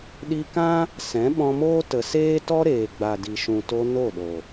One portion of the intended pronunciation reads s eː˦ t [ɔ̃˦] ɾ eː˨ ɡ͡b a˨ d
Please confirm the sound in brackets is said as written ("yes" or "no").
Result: no